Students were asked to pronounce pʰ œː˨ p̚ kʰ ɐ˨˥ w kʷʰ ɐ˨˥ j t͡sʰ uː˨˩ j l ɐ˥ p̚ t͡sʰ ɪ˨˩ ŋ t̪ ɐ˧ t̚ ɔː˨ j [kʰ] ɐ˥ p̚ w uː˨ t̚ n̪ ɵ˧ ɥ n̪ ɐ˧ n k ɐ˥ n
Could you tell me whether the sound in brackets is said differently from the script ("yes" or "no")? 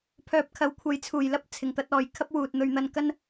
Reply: no